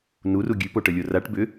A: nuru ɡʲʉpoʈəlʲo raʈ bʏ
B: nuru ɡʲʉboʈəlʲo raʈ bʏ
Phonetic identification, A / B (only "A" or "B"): A